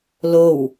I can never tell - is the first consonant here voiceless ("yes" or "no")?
no